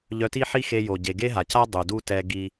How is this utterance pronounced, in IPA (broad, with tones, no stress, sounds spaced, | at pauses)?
ʎ œ˧ t i˥ ħ i˥ x e˧ j o˩ ɟ e˩ ɡ e˥ ɦ a˩ c a˥ dˤ u˩ d u˥ t ɛ˧ ɡ i˧